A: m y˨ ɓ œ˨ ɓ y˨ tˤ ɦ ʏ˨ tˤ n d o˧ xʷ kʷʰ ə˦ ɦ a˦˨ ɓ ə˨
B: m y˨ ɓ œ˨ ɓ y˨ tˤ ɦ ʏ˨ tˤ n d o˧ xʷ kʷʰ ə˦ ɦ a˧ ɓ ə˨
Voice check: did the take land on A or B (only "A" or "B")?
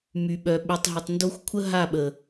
A